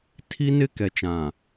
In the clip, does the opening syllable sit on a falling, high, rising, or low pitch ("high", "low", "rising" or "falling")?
high